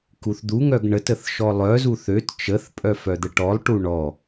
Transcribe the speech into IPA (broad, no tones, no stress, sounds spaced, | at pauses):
k u θ d̪ u ŋ œ ɡ ɳ ə t ə θ ʃ ɔ lˠ œ z u θ ø t t͡ʃ ə θ pʼ œ f œ d̪ ə ʈ ɔ lˠ ʈ u ɳ ɔ